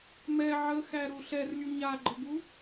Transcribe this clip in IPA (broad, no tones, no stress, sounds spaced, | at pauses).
m ɛ ʕ ə x æ ɾ u ɬ ɛ r lʲ u ɲ a ɡ͡ǃ ə ɡ u